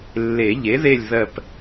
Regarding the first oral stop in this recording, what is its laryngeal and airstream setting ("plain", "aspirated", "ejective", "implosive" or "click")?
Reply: plain